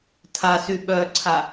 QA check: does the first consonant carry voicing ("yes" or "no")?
no